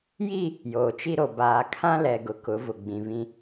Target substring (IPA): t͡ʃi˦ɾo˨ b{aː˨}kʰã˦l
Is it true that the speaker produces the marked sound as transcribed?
yes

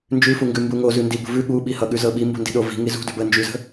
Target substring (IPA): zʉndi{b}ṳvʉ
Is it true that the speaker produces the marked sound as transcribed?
yes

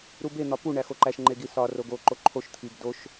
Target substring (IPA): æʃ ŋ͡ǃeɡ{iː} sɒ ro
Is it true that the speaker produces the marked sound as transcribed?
no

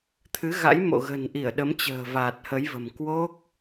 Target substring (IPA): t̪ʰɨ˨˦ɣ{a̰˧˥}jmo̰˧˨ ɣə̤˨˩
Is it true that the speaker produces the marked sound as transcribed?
yes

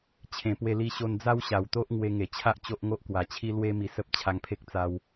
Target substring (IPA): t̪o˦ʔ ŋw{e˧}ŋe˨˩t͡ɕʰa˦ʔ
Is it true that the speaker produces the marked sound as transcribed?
yes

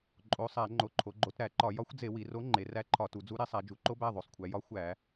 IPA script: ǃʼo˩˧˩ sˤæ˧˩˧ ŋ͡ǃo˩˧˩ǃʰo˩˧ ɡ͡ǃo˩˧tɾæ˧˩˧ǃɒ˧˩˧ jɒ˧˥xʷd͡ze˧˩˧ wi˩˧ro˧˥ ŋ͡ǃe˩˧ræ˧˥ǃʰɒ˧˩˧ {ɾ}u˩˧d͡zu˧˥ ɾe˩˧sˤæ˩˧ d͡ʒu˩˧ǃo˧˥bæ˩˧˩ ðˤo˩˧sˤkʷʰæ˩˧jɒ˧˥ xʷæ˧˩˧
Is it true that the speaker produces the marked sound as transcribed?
no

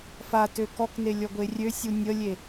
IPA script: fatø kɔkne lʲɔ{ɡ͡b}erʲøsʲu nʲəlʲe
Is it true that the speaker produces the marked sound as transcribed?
no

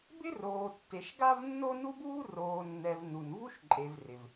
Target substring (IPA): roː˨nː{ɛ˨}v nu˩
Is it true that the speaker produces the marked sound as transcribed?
yes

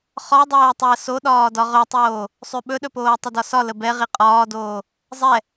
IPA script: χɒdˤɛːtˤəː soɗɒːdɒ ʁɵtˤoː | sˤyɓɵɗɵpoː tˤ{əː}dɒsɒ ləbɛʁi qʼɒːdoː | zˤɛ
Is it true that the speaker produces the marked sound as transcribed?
no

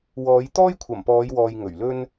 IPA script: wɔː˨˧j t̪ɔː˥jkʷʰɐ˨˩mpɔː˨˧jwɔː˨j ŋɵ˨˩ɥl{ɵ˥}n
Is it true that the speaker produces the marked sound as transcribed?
yes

